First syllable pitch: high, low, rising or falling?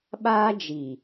high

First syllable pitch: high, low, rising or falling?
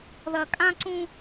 low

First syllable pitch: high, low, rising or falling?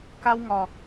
high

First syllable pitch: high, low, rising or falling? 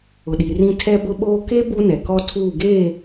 low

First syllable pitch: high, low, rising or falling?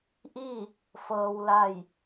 falling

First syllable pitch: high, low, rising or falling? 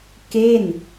falling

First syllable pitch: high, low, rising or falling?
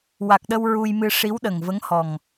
low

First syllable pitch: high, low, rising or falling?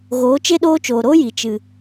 rising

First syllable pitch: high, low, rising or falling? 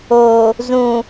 low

